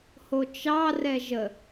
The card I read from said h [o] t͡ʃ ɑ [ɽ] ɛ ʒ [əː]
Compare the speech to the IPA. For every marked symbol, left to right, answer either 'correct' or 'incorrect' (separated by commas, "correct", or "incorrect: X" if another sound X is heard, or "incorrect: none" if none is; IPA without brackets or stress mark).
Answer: correct, incorrect: r, incorrect: ə